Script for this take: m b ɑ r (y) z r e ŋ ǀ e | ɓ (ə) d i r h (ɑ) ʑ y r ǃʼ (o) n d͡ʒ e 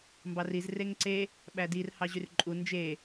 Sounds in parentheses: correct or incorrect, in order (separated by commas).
incorrect, incorrect, correct, incorrect